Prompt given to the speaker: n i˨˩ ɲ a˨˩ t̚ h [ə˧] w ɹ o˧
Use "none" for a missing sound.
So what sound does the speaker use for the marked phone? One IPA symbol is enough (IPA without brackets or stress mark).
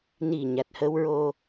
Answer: ə˧